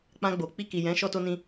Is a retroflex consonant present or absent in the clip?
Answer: absent